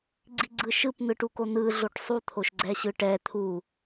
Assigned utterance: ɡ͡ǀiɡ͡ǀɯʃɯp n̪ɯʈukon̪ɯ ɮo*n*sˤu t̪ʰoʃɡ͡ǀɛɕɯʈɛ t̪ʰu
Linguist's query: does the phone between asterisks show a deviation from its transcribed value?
yes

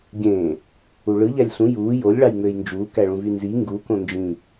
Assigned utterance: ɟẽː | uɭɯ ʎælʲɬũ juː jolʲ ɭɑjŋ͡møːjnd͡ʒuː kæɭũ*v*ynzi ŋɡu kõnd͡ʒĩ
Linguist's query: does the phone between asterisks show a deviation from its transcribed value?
no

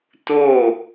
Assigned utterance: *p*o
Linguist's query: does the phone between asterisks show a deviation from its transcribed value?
yes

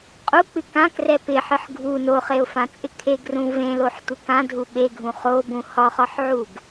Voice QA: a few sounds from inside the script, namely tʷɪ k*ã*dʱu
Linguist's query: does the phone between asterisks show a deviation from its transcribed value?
no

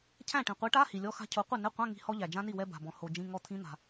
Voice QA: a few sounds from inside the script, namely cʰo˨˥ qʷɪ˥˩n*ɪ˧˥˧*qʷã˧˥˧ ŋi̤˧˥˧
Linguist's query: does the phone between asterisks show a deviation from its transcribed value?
no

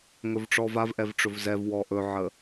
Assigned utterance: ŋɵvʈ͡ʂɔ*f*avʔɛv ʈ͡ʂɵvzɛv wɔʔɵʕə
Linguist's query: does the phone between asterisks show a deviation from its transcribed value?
yes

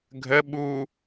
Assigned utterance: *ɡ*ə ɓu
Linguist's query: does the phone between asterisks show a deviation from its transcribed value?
yes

